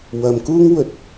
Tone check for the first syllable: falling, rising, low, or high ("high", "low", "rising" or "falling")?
low